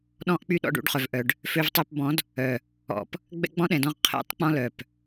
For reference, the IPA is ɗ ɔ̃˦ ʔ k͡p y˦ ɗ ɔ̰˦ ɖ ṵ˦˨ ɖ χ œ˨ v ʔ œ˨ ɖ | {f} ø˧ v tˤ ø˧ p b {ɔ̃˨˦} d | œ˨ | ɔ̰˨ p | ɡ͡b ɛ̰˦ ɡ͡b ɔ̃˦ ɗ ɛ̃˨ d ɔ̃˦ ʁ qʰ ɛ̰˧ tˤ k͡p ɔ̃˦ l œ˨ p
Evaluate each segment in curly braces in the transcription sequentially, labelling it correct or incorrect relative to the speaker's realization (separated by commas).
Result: correct, correct